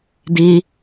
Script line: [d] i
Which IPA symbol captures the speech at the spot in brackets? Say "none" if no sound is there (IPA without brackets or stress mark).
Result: d